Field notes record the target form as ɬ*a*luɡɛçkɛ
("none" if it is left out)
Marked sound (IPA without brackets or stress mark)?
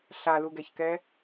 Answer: a